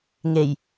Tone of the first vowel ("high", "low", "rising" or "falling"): low